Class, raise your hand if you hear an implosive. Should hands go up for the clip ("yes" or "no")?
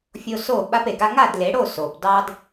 yes